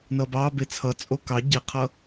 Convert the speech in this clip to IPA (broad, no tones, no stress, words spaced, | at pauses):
nʌbɑ bet͡sʰʌ t͡sʼokɑ ɟiqʰʌ